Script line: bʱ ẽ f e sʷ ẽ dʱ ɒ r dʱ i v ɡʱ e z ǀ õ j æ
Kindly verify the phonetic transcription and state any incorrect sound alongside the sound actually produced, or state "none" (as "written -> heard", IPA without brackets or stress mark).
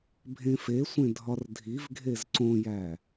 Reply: none